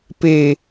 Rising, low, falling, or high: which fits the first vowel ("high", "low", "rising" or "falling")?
low